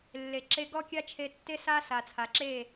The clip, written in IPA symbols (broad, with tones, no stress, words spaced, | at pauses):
lːe˨ ǁe˧ɡɔ˦ kʲa˦t͡ʃʰe˧tːe˦sa˦ sa˨t͡sʰa˨ǁe˦˨